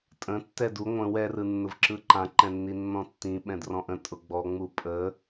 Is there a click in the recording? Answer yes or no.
yes